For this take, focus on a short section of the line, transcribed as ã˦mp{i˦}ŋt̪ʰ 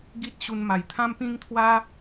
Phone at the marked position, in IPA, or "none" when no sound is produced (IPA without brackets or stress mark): ĩ˦